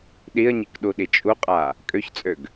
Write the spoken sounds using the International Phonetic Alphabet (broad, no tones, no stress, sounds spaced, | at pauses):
ɗ i ə̯ ɲ i k ɗ u ɗ i t͡ʃʼ u qʼ a | kʼ ø ç t͡sʼ ø ɡ